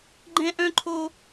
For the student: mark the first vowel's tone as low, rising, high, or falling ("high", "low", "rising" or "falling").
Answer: high